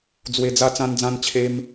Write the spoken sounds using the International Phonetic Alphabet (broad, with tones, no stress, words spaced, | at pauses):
d͡zwe˧d͡za˦ t͡sã˦nd͡zã˦nt͡ɕʰe˦m